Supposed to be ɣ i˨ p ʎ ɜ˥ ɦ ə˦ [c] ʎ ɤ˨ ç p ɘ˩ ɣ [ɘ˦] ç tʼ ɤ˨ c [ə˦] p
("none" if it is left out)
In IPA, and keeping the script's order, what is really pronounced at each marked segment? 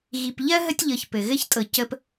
tʲ, ɘ˥, ə˦

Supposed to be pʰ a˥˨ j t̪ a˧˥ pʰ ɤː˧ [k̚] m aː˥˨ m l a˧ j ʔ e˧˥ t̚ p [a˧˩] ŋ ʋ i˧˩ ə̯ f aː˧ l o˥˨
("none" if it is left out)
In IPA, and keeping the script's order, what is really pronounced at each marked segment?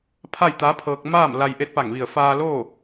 k̚, a˧˩

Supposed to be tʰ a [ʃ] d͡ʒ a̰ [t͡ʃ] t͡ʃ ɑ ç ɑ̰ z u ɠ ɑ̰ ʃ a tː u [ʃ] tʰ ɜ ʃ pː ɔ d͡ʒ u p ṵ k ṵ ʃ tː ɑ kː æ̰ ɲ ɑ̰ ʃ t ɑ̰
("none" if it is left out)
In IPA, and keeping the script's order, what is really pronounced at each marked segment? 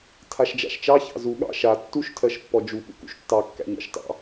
ʃ, ʃ, ʃ

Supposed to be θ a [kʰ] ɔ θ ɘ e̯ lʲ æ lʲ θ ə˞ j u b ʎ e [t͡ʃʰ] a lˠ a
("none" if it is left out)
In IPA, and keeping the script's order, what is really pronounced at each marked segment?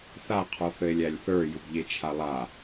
qʰ, t͡ʃʰ

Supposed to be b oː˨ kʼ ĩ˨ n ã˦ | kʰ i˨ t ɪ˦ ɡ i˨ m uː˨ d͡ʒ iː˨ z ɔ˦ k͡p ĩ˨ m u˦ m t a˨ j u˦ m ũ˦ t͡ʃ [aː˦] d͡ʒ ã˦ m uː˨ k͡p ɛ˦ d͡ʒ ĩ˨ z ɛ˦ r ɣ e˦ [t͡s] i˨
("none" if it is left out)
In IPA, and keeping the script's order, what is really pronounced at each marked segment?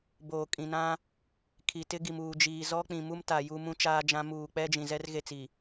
aː˦, t͡s

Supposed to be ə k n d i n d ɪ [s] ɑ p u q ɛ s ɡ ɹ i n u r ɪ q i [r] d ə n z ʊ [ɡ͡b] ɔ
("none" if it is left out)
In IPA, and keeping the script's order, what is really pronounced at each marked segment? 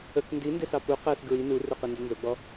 s, n, ɡ͡b

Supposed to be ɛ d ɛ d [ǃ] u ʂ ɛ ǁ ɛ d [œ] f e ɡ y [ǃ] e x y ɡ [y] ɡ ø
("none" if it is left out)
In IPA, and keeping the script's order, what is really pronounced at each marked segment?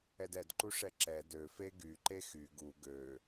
ǃ, ø, ǃ, u

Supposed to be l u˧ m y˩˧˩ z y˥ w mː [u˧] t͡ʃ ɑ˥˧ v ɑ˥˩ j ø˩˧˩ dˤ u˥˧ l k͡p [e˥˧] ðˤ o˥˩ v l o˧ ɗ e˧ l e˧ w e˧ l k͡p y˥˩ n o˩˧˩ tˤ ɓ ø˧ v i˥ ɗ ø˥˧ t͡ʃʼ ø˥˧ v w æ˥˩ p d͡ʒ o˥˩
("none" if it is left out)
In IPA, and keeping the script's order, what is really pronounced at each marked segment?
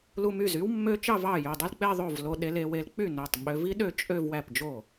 ø˧, e˥˧

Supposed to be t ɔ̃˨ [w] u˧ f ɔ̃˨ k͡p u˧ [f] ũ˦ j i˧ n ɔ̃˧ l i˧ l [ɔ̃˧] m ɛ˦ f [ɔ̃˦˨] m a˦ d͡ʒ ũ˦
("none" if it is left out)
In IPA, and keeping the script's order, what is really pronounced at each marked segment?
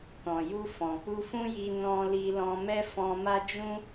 j, f, ɔ̃˧, ɔ̃˧

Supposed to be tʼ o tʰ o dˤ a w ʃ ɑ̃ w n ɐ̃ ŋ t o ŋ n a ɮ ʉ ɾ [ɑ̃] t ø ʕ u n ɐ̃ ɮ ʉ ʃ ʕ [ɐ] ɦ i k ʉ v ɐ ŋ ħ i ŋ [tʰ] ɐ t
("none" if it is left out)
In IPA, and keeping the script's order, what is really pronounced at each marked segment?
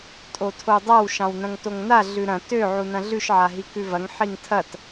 ɐ̃, a, tʰ

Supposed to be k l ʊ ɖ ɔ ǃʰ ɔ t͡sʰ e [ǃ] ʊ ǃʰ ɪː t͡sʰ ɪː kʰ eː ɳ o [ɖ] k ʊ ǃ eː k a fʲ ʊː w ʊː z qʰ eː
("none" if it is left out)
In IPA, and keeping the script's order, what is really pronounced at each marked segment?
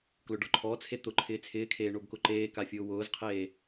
t̪, b

